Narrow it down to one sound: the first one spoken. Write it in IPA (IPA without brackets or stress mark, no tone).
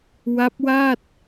w